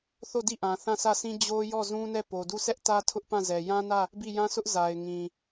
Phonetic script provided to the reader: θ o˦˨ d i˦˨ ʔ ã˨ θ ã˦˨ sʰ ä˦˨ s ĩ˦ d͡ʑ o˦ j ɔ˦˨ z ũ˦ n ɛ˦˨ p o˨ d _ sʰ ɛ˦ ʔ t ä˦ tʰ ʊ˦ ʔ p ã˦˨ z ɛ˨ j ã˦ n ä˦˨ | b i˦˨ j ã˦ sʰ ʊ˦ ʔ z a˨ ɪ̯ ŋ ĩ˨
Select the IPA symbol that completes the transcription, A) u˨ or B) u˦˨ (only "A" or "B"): B